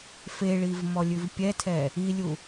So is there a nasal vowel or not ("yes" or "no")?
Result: no